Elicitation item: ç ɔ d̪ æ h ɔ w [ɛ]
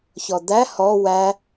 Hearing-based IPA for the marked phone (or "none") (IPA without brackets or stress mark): æ